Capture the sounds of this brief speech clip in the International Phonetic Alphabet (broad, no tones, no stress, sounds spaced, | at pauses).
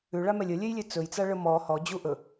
ʉ ɭ a m ɛ lʲ ə lʲ e j lʲ e t͡s ɵ j t͡s a ɭ ə m ɔ h ɔ d͡ʑ u ʔ ɵ